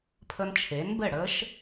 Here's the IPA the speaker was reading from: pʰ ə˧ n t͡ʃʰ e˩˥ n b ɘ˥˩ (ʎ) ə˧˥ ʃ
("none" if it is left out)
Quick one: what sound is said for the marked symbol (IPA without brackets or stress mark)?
ɽ